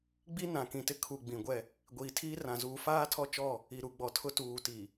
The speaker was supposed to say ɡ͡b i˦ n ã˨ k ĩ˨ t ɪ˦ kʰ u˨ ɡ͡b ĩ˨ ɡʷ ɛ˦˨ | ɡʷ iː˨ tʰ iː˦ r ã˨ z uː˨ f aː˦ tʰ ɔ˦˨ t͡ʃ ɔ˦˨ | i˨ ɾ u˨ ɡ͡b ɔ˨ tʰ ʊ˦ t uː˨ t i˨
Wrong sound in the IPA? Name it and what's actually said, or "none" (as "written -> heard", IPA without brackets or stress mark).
none